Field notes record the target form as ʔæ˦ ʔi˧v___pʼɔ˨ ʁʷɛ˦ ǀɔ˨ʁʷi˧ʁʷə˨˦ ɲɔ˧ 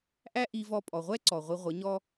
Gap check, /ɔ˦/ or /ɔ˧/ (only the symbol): ɔ˧